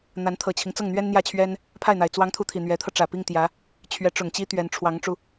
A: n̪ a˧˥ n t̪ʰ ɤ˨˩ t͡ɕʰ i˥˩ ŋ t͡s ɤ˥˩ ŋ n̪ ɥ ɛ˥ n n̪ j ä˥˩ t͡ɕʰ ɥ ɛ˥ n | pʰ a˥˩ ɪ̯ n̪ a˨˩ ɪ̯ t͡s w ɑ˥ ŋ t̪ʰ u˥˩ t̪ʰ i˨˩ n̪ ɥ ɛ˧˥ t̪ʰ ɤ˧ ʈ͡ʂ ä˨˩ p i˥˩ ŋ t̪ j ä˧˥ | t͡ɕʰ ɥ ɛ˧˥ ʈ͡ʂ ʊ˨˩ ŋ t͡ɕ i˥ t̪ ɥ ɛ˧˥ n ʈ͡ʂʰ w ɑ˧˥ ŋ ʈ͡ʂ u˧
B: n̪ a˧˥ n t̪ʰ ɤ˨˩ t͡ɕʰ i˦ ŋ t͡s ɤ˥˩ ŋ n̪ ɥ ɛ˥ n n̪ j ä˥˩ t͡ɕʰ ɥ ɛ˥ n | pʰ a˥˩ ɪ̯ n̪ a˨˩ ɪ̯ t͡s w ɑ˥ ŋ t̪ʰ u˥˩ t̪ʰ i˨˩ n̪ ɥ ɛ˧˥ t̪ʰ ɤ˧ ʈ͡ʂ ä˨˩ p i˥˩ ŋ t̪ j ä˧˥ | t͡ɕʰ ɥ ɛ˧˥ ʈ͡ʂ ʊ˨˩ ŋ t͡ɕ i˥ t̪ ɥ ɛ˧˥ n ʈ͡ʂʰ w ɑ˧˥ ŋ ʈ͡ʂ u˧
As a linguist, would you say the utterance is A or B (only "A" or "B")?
B